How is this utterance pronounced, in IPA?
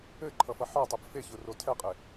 ɘǃʰʌfʌ ħɒtˤɘb feçʊro tʰɛqʼe

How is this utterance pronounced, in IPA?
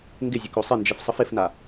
ŋɡɪzʲəko sˤɪnd͡ʒɪfsˤəf ɪfna

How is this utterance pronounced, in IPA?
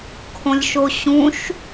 kʰõlʲʃoɕũʃ

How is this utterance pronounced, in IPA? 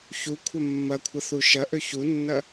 çu kʷʰɐmːɐkʷʰɐ θuʃɐʔø çunːɐ

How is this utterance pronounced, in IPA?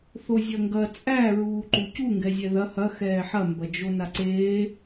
θozʲɐŋɡɐ t͡sʼæ ɹuːǃucu ŋɡɛzʲɛðɐ hɐ xɛːħɐ mbɐd͡ʒonaǀeː

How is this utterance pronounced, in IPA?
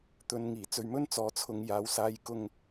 t̪ɵ˨nŋiː˨˩ t͡sɵ˨ɥmɵ˥n t͡sɔː˨˥t͡sʰʊ˧ŋjaː˨˧w saː˨˧jkʊ˧ŋ

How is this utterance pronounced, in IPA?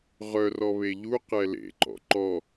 ʁœrɔ βeʎuqɛ lḛǃɔ̰ ǃɔ

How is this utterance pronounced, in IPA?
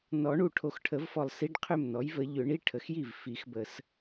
nɔ˨˩˦ɳu˨˩ ʈʰo˨˩xʈʰə˨˩˦vfɔ˨˩lˠsi˧˥˧ɖ qʰʏ˥˩mnɔ˩˥j və˨˩˦ ʎʏ˨˩˦ɳi˧˥˧ ʈʰə˩˥xji˥˩v fi˨˩˦xbə˨˩˦s

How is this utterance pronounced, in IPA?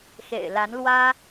xḛ˨˩ɪ̯la˧˥n lwä˥

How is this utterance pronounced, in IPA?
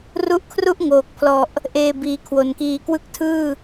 ru˦˥ʔ kʰru˦˥ʔŋoː˨˩k̚pʰlɔ˨˩ʔ | ʔeː˧biː˩˦ kʰwo˨˩nkiː˧ kwɯ˦˥k̚tʰɯː˥˩

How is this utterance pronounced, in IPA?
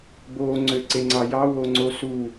bo ŋ͡ǀøǀeŋ͡ǀɑjɑ woŋ͡ǀosu

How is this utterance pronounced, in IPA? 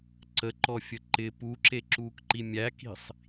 ǀəǃɔfʲə ǃɪ puǁeǁuːkǃi mʲæki̤sˤ

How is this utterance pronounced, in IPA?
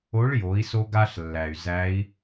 o˧˥ɭjo˩˧i̯ so˧ɡa˧ɬlːæ˩y̯ zæ˧˥i̯

